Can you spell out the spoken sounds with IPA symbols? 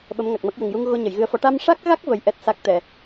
ɓ ə˧˥ m ŋ a˨˩ k̚ m ə˦˥ k̚ j ə˨˩ ŋ j u˧ ŋ ɣ o˧ ɲ ə˨˩˨ j ɣ ɨ˧ ə̯ f ɔ˧˥ ʈ a˧ m ʂ a˦˥ k̚ ɣ a˦˥ k̚ v ə˧ j ʔ ɛ˦˥ t̚ s a˦˥ k̚ t̪ ɛ˨˩˨

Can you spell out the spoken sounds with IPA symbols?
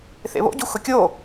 θ ḛ β o̰ ɟ u x ʊ kʲ o

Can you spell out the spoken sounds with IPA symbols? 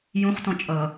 j ũ χ t ɔ̃ t͡ʃʼ ʌ

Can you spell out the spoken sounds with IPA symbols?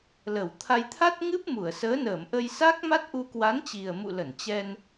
l ə˧˩ w t̪ʰ a˧ j t̪ʰ a˦˥ t̚ ŋ ɨ˦˥ p̚ m u˧˩ ə̯ s əː˨˦ n əː˧˩ m ʔ ə˧ j s aː˦˥ k̚ m a˦˥ t̚ ʔ u˧ k w a˨˦ n t͡ɕ i˨˩ ə̯ m ṵ˧˨ l ə˧˩ n t͡ɕ ɛ˧ n

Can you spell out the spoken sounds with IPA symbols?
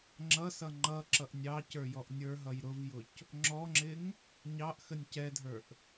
ŋ͡ǁ ʌ s ʌ ŋ͡ǃ ʌ ǁ ʌ ʔ nʲ ɑ c ə˞ j ɔ ʔ nʲ ə˞ ɦ ʌ j ɾ ʊ v j ʊ c | ŋ͡ǁ ɔ ŋ͡ǁ ɪ ŋ | ɲ ɑ ʔ x ə nʲ c ɛ dʱ ə˞ ʔ

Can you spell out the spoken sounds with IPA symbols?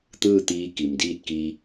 t̪ ɯː˥˨ t̪ iː˧ k i˩ m d iː˥˨ t̚ k i˧

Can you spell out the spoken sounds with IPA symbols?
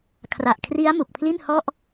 kʰ r a˨˩ ʔ kʰ r i˦˥ a̯ m u˨˩ k̚ pʰ l i˥˩ n h ɔ˥˩ ʔ

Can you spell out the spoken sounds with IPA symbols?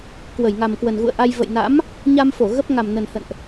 k w ə˧˩ j ŋ a˨˩ m k w ə˨˩ n ɣ ṵ˧˨ ə̯ ʔ a˧ j v ə̰˧˨ j n a̰˧˥ m | ɲ a˧ m f o˧˩ ɣ ə˦˥ p̚ ŋ a˨˩ m n ə˨˩ n h ə̰˧˨ n ʔ

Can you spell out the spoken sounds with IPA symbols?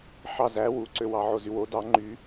ħ ɑ z æ w u ǀ ø w ɑ ʕ o z y w o d ɑ ŋ͡ǃ y

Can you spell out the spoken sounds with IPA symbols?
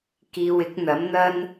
k iː˨ w ɪ˨˥ k̚ n̪ ɐ˨˥ m n̪ ɐ˥ n

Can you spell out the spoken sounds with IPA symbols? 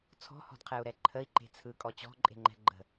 t͡sʰ ɔ̤ h ɔ̤ d qʰ ɛ u̯ ɾ ɛ ǃʰ ə i̯ ǃ e̤ t͡sʰ ɯ kʼ ɔ t͡ɕ ɔ̤ ǃʼ e̤ ŋ͡ǃ ɛ̤ ɡ͡ǃ ə̤

